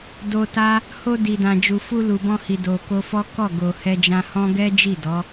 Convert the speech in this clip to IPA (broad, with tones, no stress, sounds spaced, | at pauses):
d o˧ t a˦ | h o˧ d i˨ d ã˨ d͡ʒ u˨ f u˧ l u˨ b ɔ̃˧ h i˨ d o˨ k o˧ f ɔ˦ k ɔ˦˨ ɡ o˨ h ɛ˧ d͡ʒ ã˧ h ɔ̃˦ ɡ ɛ˦ d͡ʒ i˦˨ d ɔ˨˦